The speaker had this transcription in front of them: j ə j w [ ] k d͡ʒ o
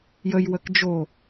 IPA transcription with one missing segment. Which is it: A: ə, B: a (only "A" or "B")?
A